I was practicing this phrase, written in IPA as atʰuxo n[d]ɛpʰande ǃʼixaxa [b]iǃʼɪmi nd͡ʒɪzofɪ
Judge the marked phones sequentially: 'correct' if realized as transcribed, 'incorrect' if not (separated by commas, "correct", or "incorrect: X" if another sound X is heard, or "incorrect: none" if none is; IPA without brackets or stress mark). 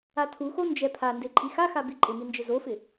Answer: incorrect: d͡ʒ, correct